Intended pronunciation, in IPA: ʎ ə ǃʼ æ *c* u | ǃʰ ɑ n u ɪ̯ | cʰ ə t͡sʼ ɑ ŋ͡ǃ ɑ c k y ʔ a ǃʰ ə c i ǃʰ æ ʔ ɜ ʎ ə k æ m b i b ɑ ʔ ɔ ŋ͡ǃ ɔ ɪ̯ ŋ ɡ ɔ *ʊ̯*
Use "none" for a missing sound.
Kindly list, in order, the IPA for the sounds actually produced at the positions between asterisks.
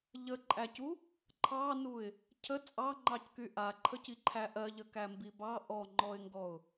c, ʊ̯

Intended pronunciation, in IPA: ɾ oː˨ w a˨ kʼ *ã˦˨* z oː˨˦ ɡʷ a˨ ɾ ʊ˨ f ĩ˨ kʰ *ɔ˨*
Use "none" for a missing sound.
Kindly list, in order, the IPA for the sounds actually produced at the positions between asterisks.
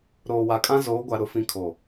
ã˦, o˨

